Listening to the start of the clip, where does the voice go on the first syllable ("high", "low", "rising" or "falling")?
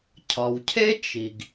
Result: low